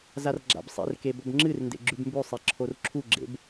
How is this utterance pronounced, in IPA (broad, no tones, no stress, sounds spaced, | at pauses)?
z a r ɡ͡ǁ a̰ b sˤ ḛ r k e b ɵ b ŋ͡ǁ ɨ r n d ḛ ɡ͡ǁ ʉ b m b ʉ sˤ e ǁʰ o r ǁʰ u ɡ͡ǁ ḛ b